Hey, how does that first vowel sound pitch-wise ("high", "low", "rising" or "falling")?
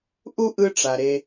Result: high